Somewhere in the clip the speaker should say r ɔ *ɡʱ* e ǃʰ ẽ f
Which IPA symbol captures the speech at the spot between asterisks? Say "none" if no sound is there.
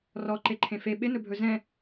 ǃ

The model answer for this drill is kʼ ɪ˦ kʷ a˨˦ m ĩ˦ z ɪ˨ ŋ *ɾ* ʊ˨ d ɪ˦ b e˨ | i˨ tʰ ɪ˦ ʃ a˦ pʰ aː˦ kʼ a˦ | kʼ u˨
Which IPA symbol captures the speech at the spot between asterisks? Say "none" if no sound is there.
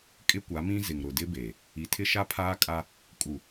ɾ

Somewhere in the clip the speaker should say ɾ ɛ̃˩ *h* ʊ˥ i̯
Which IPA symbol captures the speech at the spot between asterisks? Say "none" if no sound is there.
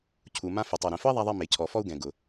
f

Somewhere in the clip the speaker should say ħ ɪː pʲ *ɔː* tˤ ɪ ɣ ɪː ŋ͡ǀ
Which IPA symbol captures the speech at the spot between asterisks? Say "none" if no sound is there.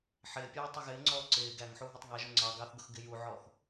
ɔː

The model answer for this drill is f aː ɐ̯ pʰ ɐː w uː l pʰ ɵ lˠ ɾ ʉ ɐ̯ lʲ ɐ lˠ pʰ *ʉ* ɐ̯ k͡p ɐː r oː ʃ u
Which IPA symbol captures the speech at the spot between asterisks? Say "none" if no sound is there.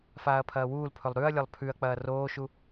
ʉ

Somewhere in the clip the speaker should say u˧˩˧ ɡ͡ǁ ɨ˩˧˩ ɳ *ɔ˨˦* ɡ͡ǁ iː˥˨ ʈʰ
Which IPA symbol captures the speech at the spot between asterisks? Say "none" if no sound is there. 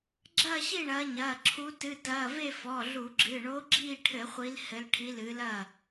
o˨˦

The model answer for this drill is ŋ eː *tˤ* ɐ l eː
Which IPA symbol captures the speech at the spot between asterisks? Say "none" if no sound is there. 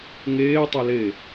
tˤ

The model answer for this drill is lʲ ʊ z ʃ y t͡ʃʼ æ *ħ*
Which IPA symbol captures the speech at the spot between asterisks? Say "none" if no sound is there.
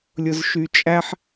ħ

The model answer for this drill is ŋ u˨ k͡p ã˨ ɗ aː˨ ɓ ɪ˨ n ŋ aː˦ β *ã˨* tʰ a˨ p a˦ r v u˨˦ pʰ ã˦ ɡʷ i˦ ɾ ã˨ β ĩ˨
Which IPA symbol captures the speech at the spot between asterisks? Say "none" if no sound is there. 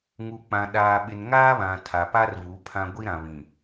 ã˨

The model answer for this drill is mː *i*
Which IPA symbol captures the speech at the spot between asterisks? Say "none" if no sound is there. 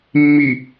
i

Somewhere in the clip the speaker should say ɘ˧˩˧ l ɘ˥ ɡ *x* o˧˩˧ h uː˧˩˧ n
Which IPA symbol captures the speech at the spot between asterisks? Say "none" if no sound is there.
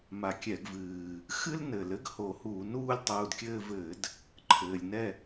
h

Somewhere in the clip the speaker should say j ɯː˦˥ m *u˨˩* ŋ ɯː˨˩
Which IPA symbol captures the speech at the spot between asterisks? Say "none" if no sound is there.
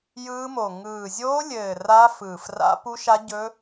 o˨˩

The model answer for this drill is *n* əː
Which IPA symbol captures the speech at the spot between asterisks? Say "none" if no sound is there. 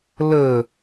l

